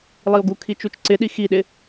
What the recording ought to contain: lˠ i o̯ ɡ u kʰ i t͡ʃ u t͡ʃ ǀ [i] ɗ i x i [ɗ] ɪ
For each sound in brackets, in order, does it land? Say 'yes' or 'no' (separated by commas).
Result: no, yes